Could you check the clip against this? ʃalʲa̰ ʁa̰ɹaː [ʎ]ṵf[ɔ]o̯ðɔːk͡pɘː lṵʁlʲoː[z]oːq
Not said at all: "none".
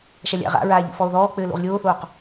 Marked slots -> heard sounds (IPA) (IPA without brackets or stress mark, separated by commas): ʎ, ɔ, θ